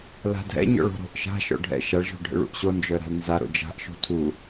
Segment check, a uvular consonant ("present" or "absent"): absent